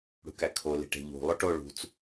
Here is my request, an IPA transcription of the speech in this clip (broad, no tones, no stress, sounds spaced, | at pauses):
ɽ ṳ k æ kʰ o l i̤ ʈ e̤ ʎ ṳ lˠ o ʈ o ɭ ṳ t͡s